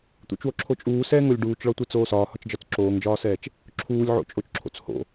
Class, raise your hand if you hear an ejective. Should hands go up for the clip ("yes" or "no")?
yes